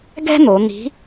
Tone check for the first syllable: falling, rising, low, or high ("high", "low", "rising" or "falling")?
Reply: high